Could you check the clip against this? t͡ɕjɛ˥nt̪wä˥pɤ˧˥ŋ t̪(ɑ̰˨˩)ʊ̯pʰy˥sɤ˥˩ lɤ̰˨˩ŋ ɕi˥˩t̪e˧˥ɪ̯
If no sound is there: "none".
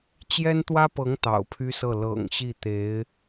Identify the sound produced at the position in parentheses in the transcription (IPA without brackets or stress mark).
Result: ɑ̰˨˩